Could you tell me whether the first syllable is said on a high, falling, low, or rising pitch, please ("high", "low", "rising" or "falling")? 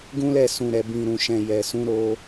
high